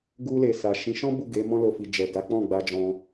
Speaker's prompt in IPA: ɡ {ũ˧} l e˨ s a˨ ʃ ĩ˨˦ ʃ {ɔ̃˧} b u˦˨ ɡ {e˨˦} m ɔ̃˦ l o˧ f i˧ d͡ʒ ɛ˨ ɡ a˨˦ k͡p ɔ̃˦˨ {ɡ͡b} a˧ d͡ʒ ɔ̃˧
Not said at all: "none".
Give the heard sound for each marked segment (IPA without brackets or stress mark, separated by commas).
u˧, ɔ̃˦, e˨˦, ɡ͡b